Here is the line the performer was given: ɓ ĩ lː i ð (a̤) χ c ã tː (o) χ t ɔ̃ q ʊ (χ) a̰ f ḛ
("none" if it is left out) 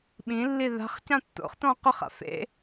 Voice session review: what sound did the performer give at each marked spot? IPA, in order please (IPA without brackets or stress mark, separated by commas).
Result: a̤, o̰, χ